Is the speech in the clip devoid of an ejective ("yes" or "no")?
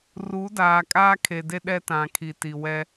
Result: no